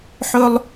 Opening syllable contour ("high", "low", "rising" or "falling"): high